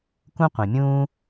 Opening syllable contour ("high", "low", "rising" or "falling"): high